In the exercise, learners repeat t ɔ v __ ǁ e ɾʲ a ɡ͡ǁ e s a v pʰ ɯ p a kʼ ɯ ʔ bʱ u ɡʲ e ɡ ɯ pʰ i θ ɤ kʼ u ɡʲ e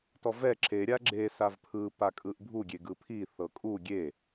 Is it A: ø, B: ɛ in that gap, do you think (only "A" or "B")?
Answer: B